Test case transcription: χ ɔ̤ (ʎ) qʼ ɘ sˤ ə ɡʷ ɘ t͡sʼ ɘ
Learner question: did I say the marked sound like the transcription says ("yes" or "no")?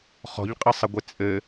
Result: yes